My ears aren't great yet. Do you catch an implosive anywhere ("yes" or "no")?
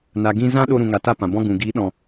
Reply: yes